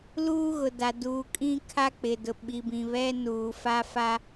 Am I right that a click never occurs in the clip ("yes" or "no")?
yes